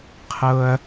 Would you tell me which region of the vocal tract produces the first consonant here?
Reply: uvula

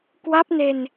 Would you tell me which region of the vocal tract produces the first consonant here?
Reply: velum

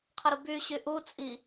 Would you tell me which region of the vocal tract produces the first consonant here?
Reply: uvula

